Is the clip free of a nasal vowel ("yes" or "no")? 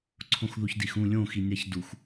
no